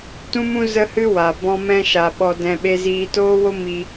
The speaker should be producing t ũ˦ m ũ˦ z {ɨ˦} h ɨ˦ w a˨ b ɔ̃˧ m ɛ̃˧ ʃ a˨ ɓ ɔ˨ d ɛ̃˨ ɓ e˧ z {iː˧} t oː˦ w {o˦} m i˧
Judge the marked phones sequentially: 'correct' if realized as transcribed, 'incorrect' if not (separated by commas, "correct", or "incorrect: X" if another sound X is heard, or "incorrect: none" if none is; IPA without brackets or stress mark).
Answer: incorrect: ə˦, correct, correct